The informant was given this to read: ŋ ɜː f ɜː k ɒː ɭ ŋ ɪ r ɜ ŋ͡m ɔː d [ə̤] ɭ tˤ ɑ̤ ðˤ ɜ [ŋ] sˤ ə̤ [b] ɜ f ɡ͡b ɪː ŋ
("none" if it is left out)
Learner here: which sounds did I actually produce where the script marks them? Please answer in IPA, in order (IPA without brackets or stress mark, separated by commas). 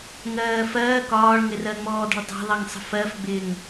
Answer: ə̤, ŋ, f